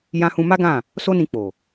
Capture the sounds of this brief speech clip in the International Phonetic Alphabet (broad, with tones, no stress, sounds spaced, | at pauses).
j ã˧ h ũ˧ m a˦ ɡ ã˦˨ | s o˦ n ĩ˧ k͡p o˨